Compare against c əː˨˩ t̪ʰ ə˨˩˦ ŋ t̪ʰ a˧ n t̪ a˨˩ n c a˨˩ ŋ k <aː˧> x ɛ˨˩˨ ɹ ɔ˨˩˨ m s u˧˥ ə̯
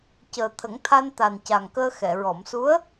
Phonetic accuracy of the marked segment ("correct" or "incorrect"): incorrect